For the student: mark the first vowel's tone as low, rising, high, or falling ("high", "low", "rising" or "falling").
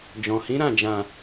low